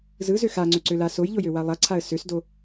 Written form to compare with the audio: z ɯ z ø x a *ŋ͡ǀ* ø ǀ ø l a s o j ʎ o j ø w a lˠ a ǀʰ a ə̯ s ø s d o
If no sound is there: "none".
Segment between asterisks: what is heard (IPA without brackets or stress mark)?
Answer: ŋ͡ǀ